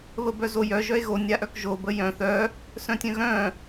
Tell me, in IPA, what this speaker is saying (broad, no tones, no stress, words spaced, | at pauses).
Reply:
βəbœzojœ ʒœe̯ɣo nʲaʔœkʒo bəjœ̃ θœ | sœ̃tʲœ̃ɣœ̃